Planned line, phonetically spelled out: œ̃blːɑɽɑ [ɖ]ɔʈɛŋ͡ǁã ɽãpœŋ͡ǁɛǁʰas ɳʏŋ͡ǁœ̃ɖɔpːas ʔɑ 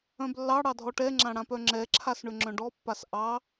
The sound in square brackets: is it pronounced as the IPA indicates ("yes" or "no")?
no